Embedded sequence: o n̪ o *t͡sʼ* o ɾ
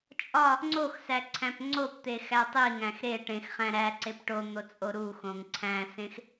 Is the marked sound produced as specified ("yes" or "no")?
yes